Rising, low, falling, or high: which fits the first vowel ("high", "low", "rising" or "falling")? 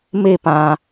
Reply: falling